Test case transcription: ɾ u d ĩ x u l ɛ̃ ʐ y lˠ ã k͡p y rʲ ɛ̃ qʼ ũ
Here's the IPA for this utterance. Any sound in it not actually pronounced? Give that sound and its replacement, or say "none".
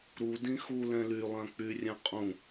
ʐ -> l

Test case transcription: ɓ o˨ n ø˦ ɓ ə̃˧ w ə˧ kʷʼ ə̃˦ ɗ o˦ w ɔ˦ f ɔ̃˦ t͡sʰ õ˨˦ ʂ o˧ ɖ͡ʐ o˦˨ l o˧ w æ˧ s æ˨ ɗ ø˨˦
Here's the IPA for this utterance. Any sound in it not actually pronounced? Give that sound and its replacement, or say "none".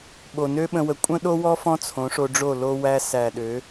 none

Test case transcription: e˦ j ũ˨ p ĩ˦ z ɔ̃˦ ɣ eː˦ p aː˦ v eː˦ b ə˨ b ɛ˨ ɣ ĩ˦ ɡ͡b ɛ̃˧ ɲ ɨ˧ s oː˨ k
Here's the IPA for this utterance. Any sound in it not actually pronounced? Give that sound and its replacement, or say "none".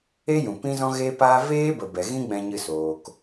none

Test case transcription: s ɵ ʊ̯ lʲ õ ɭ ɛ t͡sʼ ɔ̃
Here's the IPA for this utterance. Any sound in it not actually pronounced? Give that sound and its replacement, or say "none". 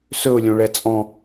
none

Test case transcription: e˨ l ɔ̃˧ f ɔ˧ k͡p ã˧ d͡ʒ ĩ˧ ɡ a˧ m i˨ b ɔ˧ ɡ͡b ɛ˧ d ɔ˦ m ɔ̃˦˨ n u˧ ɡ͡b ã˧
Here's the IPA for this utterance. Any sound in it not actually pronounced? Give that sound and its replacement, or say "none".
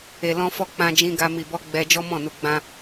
d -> d͡ʒ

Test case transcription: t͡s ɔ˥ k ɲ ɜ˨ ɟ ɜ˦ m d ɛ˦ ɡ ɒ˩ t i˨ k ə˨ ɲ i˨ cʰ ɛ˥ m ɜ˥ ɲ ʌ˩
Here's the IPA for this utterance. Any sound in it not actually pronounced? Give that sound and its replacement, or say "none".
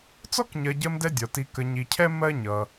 ɡ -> dʲ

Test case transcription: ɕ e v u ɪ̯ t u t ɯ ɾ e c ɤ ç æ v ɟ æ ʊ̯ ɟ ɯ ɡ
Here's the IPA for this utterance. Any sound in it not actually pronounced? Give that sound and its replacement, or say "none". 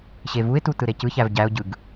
ɤ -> ɯ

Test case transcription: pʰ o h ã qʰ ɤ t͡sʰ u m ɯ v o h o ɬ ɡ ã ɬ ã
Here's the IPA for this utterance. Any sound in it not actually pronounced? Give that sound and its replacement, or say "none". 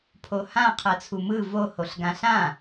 none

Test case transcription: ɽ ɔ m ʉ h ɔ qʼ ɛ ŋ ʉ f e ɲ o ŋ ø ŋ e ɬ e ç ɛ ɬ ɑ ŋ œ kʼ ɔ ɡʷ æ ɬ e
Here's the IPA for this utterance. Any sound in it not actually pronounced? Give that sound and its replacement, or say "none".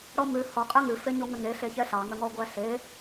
kʼ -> ŋ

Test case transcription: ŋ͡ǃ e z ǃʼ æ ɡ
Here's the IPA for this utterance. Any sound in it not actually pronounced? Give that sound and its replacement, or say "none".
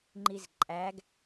e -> i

